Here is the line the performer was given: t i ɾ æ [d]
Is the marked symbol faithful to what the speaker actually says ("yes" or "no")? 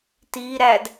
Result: yes